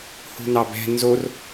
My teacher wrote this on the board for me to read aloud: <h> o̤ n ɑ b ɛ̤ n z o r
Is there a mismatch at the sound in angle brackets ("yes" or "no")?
no